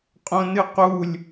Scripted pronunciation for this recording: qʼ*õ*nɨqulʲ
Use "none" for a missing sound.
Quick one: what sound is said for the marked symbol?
õ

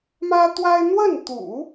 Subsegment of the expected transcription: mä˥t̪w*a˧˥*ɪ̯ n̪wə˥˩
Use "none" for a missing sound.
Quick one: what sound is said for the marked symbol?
a˥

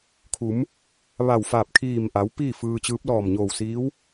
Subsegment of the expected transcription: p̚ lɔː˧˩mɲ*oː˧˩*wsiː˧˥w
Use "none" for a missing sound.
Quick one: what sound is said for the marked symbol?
oː˧˩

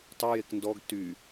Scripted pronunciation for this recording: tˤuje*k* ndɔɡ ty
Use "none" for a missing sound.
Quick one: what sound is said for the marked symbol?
k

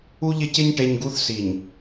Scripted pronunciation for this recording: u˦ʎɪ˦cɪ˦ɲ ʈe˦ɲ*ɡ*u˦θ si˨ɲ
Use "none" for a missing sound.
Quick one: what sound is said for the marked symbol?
ɡ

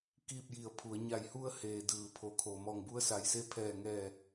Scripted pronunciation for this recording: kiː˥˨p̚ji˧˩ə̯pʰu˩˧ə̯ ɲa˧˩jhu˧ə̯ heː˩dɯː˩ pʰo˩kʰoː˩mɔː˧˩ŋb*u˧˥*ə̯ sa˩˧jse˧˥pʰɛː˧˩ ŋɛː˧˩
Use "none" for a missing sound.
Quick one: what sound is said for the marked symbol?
u˧˥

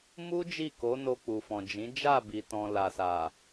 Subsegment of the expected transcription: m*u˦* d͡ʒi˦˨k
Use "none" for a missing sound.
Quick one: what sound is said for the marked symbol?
u˦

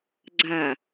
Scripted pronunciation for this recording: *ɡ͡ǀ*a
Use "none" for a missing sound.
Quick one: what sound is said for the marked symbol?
ɡ͡ǀ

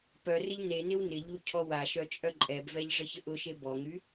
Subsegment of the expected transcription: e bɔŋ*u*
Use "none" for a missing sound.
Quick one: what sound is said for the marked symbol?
y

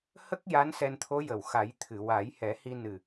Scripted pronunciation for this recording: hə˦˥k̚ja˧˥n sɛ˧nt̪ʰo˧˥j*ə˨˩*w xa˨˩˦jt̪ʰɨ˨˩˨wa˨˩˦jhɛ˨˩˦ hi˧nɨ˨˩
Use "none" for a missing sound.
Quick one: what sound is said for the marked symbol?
ə˨˩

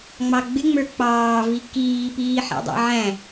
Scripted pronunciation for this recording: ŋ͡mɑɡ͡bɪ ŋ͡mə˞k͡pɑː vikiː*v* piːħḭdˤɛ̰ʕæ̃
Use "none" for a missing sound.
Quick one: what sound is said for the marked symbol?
none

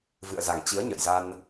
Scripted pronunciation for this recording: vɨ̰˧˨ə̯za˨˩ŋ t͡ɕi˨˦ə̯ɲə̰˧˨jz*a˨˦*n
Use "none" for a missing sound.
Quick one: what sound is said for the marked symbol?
a˧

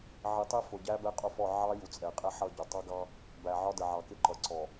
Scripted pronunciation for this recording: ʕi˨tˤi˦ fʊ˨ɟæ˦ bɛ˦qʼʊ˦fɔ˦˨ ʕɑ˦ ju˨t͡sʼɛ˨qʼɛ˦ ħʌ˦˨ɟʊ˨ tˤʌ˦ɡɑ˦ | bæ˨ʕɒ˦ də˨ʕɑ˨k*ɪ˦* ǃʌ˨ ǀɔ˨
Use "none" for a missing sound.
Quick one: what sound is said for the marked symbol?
ɪ˦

